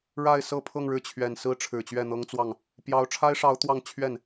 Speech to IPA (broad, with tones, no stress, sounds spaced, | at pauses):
ɻ a˥˧ ɪ̯ s ɤ˥˧ pʰ ɤ˥˧ ŋ ɻ ɻ̩˥˩ t͡ɕʰ ɥ ɛ˨˩ n s ɹ̩˥ ʈ͡ʂʰ ɻ̩˨˩ t͡ɕ ɥ ɛ˥˩ n̪ ɤ˥ ŋ t͡s w ɑ˥˩ ŋ | p j ɑ˧˥ ʊ̯ ʈ͡ʂʰ a˥ ɪ̯ ʂ ɑ˧˥ ʊ̯ t̪ w ɑ˥˧ ŋ t͡ɕʰ ɥ ɛ˥˩ n